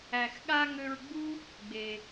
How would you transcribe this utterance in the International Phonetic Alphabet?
æ˩ x ɠ a˧ ŋ ø˧ ɹ ɡ͡b u˥ | ɡ͡b e˩

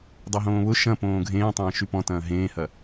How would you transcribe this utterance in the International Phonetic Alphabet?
dˤ e ɦ õː β ʊ ʃ ɐ̃ p õː ɡʱ ẽː tˤ ɐ̃ː ʃ y p ɔ̃ t ɐ̃ː ɦ ẽː h ɐ

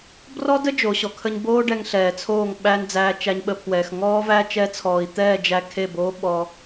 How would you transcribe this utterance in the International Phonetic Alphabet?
b r ɔ˦ d ə˦ d͡ʒ o˨˦ ɕ ɔ˨ kʰ ə˦ ɲ b oː˦ ɖ ɛ˧ ŋ ɬ ɛː˨ t͡sʰ oː˦˨ ŋ ɓ æ˧ n d͡z æː˧ t͡ʃ æ˧ ɲ ɓ ə˧ pʰ w ɛː˨ x ŋ ɔː˦ v æ˦ t͡ʃ ɛ˧ t͡sʰ ɔː˨ i̯ t̪ ɛː˦˨ d͡ʒ æ˧ kʰ e˦˨ b oː˦ ɓ ɔ˧

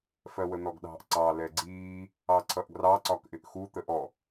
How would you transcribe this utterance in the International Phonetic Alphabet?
f ɜ w ə n̪ ɔ ɡ ɗ ɑ̤ ʔ ǀ ɑ l ɛ ɡ͡ǀ iː | ɑ ǀʰ ʌ ʔ ɡ r ɑ ǀ ɒ k ʔ ɪ ʔ x u t̪ ə ʔ ɔ

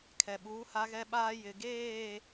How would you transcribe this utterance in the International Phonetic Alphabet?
kʰ ɛ˨ ɓ uː˨˦ h a˦ ɣ ɛ˦ ɓ aː˦ j ɪ˨ ɡ eː˦˨

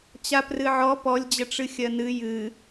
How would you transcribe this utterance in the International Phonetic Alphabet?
t͡ɕ a p r ɨ ʕ ɔ p ɔ lʲ d͡ʑ ə ʈ͡ʂ ɨ xʲ ɜ n ɨ j ɨ

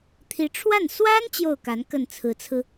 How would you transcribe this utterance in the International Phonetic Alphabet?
t̪ʰ i˧˥ ʈ͡ʂʰ w a˥˩ n s w a˥ n t͡ɕ j o˥˩ ʊ̯ k a˧˥ n k ə˥˩ n t͡sʰ ɹ̩˧˥ t͡sʰ ɹ̩˧

